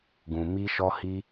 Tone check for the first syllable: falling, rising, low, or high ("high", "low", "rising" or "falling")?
low